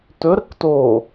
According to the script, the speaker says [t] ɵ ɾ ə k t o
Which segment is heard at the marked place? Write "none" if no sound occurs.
t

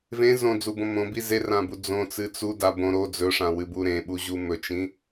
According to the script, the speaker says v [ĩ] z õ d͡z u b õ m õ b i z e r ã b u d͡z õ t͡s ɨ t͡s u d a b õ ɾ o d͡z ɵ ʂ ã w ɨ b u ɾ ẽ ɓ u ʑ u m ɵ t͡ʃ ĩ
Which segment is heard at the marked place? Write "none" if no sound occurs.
ẽ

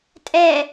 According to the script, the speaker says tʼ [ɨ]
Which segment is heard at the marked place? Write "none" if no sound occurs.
ɛ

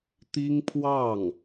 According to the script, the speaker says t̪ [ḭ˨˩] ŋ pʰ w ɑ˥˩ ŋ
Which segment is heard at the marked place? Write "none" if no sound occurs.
i˥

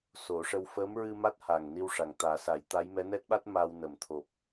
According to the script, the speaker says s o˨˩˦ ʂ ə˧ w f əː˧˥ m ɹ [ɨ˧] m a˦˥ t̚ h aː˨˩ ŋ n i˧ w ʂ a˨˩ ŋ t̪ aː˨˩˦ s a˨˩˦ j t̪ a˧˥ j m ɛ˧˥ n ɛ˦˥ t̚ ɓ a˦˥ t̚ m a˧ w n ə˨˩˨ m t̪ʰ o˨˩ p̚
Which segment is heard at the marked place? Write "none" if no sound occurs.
ɨ˧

